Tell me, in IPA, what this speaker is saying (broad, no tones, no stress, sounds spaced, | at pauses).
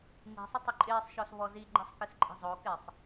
ŋ i̤ sˤ ə tˤ ɪ ǃʼ ɪː sˤ ʃ ɔ s β ɔ z i ɡ͡ǃ ɛ sˤ k ɪ s ǃʼ i̤ zˤ o k ɪ sˤ